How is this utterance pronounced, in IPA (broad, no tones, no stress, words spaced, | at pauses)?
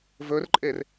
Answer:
vɵrǃʼer